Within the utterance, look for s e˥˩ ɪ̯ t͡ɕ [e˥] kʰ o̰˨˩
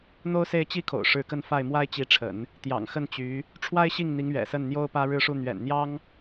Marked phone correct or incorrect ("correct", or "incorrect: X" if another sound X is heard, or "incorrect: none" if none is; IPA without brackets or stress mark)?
incorrect: i˥